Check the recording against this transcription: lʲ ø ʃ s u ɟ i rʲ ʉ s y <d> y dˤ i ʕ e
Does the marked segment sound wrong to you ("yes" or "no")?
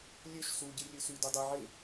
no